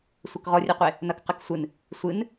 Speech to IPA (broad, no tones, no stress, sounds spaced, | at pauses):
sʷ ɘ k ʁ ɔ rʲ e qʷ e | n ɐ k q ɘ k sʷ ɨ n | sʷ ɨ n